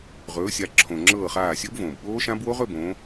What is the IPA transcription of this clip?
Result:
ʁ ɵː˩˧ sʲ a˩˧ ǁʰ õ˩ ŋ͡ǁ ɤː˧˩ χ aː˧˩ sʲ ɵ˦˥ b v õː˩ b ɓ oː˦˥ ʃ ã˦˥ b w o˦˥ ʁ ɵ˥˧ b õː˩˧

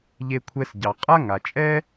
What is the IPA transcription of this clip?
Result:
ʎ e˧ kʷʰ ɛ˧ s ɟ ɑ˩ qʼ a˥ ŋ a˩ t͡ʃʼ ɛ˥

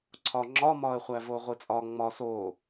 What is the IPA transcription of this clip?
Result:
ǀʰ ɒ ŋ͡ǁ ɒ m ɒ ə̯ χʷ æ v o ʁʷ i t͡sʼ ɒ ŋ͡m ɒ s o

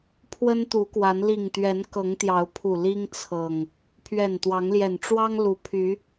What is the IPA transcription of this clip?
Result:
pʰ w ə˦ n t̪ u˨˦ k w a˨˦ n l i˨˩ ŋ t̪ ɥ ɛ˨˦ n k ɤ˨˦ ŋ t̪ j ɑ˨˦ ʊ̯ pʰ u˨˩ l i˦ ŋ t͡sʰ ɤ˨˩ ŋ | pʰ ɥ ɛ˨˩ n t̪ w ɑ˨˦ ŋ l j ɛ˨˩ n ʈ͡ʂ w ɑ˦ ŋ l u˨˦ pʰ y˨˦

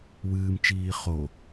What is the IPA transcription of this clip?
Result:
w ɨː m t͡ʃ iː χ o

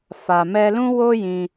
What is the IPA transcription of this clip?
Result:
f a˨ m ɛ˧ l ũ˦ w o˦ j ĩ˧

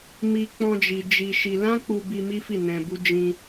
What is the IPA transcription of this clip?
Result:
m i˧ k͡p ɔ̃˧ d͡ʒ i˨ d͡ʒ i˧ ʃ i˧ l ã˦ k͡p u˧ b i˧ m i˦ f i˦˨ n ɛ̃˧ b u˦ d͡ʒ ĩ˦

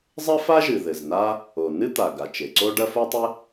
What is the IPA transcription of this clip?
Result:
zˤ ɘ˥ f a˥ ʒ ɨ˩ ð ɘ˩ z n a˥ | o˩ n ɨ˥ t̪ a˩ ɡ a˩ t͡ʃ e˩ ǀ o˥ ɖ ɐ˥ f o˥ tˤ ɨ˥

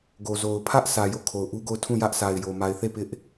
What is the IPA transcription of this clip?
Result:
ɡ o˨ z o˨ ʊ̯ pʰ ä˦ ʔ sʰ ä˨ j o˦˨ kʰ o˨ ʊ̯ ʔ u˦ ɡ o˦˨ ʊ̯ tʰ ũ˦˨ j ä˦ ʔ s a˨ ɪ̯ j o˨ m a˨ ɪ̯ θ e˦˨ p ɪ˦ ʔ

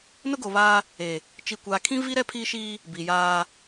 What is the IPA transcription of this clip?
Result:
n ʊ˦ ɡ o˨ β aː˦ | e˨ | t͡ʃ i˨ kʷ aː˨ kʰ ĩ˦ v i˦ ɾ ɛ˦ pʰ iː˦ ʃ iː˦ | b i˨ j aː˦

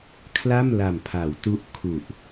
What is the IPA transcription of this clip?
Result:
kʰ l a˥˩ m l a˨˩ m pʰ a˩˦ w t u˦˥ ʔ kʰ u˨˩ ʔ

